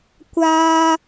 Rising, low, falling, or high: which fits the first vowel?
high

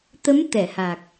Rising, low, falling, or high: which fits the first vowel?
rising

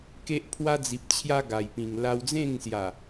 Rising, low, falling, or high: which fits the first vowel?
high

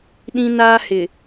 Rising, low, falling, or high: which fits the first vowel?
high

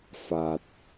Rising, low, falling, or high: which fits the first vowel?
low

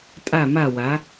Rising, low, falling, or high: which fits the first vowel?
falling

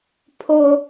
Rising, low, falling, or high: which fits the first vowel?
high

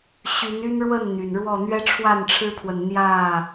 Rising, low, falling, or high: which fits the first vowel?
rising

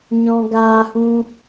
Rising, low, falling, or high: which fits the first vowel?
high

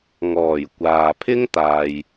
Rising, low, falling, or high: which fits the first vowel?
low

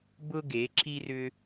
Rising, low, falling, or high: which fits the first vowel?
high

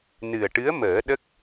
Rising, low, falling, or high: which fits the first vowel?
low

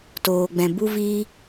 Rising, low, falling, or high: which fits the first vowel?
low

